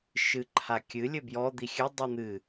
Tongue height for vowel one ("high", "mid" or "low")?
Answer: high